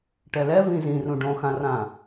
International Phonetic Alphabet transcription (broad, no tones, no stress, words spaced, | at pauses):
ʈɛlɛ vĩzĩrũ ɖõxãrã